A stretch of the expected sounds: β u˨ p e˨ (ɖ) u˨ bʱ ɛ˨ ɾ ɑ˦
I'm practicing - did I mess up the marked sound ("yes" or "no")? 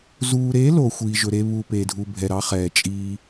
yes